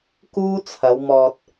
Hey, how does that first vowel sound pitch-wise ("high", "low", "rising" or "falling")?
high